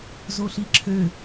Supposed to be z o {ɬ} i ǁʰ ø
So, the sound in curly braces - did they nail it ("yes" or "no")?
yes